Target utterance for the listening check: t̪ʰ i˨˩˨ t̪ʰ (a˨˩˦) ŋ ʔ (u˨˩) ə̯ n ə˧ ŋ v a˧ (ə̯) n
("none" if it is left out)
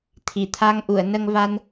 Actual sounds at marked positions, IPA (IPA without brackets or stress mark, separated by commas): a˧, u˨˩˨, none